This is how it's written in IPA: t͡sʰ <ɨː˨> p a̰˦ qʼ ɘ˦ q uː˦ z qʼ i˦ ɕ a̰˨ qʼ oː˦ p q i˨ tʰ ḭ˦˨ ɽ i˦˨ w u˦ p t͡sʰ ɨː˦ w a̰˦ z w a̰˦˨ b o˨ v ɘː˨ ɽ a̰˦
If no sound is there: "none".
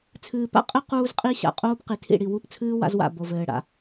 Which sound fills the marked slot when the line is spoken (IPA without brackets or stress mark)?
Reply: ɨː˨